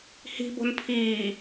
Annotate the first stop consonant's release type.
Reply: plain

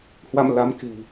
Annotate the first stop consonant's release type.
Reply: plain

